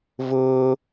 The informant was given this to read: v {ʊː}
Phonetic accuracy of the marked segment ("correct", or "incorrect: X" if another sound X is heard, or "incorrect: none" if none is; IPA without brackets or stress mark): correct